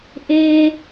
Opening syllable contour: low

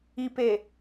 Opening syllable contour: low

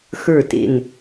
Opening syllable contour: falling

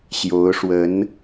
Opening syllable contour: rising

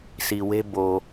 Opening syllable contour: low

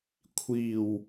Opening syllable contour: low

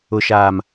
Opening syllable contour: low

